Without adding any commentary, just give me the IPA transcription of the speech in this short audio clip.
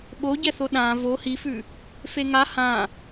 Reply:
ɓ o ɟ ɛ θ o ɗ ã v o h i f ʉ | f e ŋ a h ã

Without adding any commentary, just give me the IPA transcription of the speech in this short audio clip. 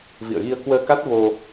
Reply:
v ḭ˧˨ ə̯ ɣ i˧ ə̯ k w əː˧ k a˦˥ t̚ v o˧

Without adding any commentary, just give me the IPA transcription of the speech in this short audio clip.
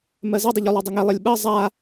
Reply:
m ɜ z e dˤ ə ʎ u lˠ ɜ dˤ ə ŋ e lˠ ɘ lʲ ɓ ɜ zˤ a

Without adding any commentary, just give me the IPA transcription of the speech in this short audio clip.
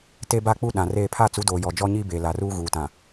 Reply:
t e˦ b a˦ k͡p u˦ ɗ ã˨ r eː˦˨ pʰ a˦˨ t͡s u˨˦ d oː˨ j ɔ˨ d͡ʒ ɔ˦ ɲ i˦ b e˨ l a˨ r uː˦ ɣ uː˨ t ã˨

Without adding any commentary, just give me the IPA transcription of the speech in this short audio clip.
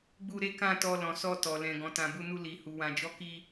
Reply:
ɡ͡b u˧ ɾ e˦ k ã˦˨ t ɔ˧ l ɔ̃˨ s ɔ˧ t ɔ˨ l ɛ̃˨ ɡ ɔ̃˨ t ã˨ b u˧ n u˧ l i˨ h u˨ w ã˨ d͡ʒ ɔ˨˦ k i˧

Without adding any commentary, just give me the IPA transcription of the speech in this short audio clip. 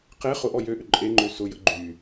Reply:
q e χ ʊ ʔ ɔ j ø ʔ ʏ ǃʼ e ŋ͡ǃ ø s ʊ j ə̰ ɡ͡ǃ y

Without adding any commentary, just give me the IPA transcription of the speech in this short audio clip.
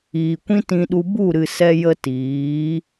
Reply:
iː˨ kʷ ĩ˦ t ĩ˧ ɗ u˧ b u˦˨ ɾ ɨ˨ s ɛ˧ j ə˧ t iː˨˦

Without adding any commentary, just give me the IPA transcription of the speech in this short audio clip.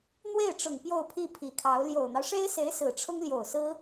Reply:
n̪ w e˥˩ ɪ̯ ʈ͡ʂ ʊ˨˩ ŋ p j o˥˧ ʊ̯ pʰ i˥˩ pʰ i˨˩ kʰ ɑ˧˥ ʊ̯ l j o˨˩ ʊ̯ n̪ ɑ˦ ʊ̯ ʂ e˥ ɪ̯ s e˧˥ ɪ̯ s ɹ̩˨˩ ʈ͡ʂʰ ʊ˥ ŋ l j o˨˩ ʊ̯ s ɹ̩˥

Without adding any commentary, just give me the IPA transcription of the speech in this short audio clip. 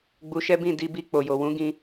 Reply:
ɡ͡b u˧ ʃ ɛ˦ b ĩ˦˨ d i˧ b i˧ k͡p o˨ j o˨ w ũ˨˦ ɡ ĩ˧

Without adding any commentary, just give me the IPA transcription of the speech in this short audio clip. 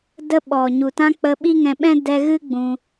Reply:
d ə˧ ɓ ɔ˨ ɲ u˨ t ã˧ k͡p ə˧ ɓ i˦ ŋ ɛ̃˧ ɓ ɛ̃˦ d ɛ˧ ɣ ɨ˦ ɡ͡b ũ˧

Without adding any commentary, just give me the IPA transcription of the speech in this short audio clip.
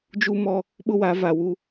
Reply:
d͡ʒ u˦ m ɔ˦ | ɓ ʊ˦ w a˨˦ v a˨ w u˦

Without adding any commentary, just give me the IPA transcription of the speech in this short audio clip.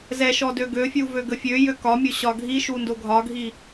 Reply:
z ɛ ʃ ɔ d ø ɡ ø fʲ u v ø ɡ ə fʲ ø j ø k ɒ mʲ o ɕ ɒ ɡʱ i ʃ u n d o ɡʱ ɒ ɡʱ i

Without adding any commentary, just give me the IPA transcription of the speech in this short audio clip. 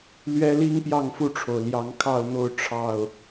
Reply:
l ɥ ɛ˦ l i˦ ŋ p j ɑ˥˨ ŋ f u˥˨ ʈ͡ʂʰ o˩ ʊ̯ l j ɑ˨˦ ŋ kʰ ɑ˥˨ ʊ̯ n̪ o˥˨ ʊ̯ ʈ͡ʂʰ ɑ˥˨ ʊ̯

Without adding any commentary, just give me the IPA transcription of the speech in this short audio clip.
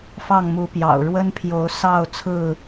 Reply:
f ɑ˥˨ ŋ m u˨˦ p j ɑ̰˨˩ ʊ̯ ɻ w ə˦ n pʰ j o˨˦ ʊ̯ s ɑ˥˨ ʊ̯ t͡sʰ ɹ̩˥˨

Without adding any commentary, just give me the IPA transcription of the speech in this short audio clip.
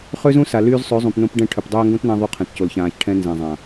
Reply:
χ ø˦ z ũ˦ s a˨ l yː˧ z sˤ ø˨˦ zˤ ũ˨ p n õ˧ p ɖ ɛ̃˦˨ ʈʰ ø˨ p dˤ øː˧ ŋ ɡ õ˦ t n ã˧ ðˤ y˧ qʰ ɛ̃˨ t c o˨ l ç ãː˨ ç ʈʰ ɛ̃˧ n z ɛ̃˨ zˤ ã˨

